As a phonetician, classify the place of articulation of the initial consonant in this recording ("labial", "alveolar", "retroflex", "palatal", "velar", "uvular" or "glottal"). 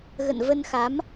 velar